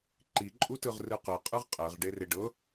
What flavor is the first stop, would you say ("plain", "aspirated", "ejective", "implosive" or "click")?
click